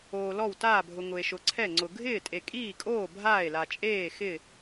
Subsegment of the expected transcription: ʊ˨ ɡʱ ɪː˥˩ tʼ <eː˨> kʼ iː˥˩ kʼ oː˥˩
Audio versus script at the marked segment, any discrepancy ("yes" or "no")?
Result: yes